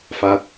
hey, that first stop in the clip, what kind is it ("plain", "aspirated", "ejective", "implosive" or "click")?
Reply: plain